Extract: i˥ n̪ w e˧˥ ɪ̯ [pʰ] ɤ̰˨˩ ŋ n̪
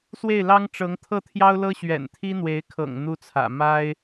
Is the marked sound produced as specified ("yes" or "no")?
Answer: no